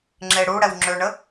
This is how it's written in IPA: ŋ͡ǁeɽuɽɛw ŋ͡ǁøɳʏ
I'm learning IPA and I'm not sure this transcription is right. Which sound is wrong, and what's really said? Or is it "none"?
ʏ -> ə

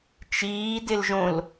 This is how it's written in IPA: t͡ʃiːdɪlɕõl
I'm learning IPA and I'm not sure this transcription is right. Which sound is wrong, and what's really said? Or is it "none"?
ɕ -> ʒ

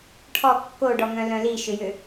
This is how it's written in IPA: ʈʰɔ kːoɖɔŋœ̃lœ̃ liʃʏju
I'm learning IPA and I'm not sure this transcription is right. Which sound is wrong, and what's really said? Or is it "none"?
u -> ʏ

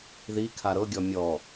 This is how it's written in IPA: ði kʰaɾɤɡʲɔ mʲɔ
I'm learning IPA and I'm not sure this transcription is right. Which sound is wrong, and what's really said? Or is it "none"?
none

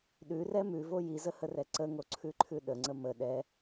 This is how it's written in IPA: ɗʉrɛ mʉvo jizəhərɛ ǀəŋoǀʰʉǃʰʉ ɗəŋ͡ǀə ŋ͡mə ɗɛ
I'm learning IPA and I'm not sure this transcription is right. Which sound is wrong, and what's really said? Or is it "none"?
ŋ͡m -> m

